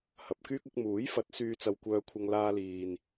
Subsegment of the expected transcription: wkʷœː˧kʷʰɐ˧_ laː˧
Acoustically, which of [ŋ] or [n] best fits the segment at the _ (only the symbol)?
ŋ